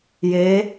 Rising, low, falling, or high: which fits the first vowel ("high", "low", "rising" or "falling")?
rising